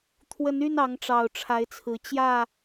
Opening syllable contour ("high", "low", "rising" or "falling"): rising